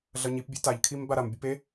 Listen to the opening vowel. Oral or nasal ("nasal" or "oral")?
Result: oral